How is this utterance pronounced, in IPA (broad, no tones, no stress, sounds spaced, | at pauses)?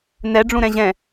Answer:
n ɛ ɖ͡ʐ ũ ɾ ɛ̃ ʑ ɛ̃